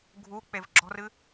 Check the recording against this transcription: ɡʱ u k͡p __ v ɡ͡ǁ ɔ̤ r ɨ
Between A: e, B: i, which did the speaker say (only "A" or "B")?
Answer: A